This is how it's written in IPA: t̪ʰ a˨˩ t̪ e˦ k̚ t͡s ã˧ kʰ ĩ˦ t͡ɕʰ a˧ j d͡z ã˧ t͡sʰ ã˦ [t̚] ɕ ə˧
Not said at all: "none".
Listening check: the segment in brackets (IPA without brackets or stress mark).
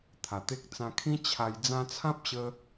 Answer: p̚